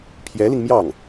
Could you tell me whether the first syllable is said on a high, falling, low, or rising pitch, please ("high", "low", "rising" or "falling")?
rising